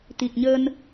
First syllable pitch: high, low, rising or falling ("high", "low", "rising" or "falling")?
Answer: low